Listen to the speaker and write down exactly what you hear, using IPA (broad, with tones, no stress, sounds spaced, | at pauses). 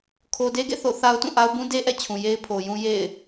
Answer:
kʰ o˨ d e˦ ɡ ḛ˦˨ θ o̰˦˨ θ a˦ ʊ̯ t ũ˦˨ ʔ a˦ ʊ̯ b ũ˦ d e˦ ʔ ɛ̰˦˨ t͡ɕʰ ũ˨ j e˦ ɪ̯ pʰ o˨ j ũ˦ j ḛ˦˨ ɪ̯